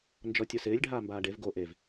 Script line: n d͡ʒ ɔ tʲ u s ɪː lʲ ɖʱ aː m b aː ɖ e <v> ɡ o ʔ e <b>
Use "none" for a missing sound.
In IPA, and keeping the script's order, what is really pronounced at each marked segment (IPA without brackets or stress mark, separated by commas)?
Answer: v, v